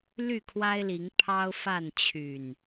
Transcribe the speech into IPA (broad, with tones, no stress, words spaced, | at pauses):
ly˥˨kʰwa˦ɪ̯li˨˦ŋ pʰɑ˦ʊ̯fa˥˨nt͡ɕʰy˨˩n